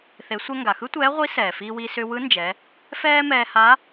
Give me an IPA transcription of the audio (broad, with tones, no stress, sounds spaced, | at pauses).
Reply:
θ e˩˧ sʷ ɛ˧ ŋ ɡ a˩ x ɯ˥ tʷ ɛː˧˥ ʁʷ i˧˥ s ɛː˩ f iː˧ w i˧ s ʏ˧ w ɯ˧˥ n d͡ʒ ɛ˩˧ | f ɛː˥ m ɛː˧ h a˧˥